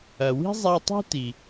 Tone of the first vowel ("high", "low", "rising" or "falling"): low